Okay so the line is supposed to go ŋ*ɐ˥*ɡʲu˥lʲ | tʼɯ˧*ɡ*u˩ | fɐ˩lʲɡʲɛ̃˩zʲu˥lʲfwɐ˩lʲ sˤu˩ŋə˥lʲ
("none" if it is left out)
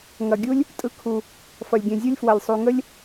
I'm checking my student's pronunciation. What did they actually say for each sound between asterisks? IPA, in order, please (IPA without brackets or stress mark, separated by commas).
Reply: ɐ˩, kʰ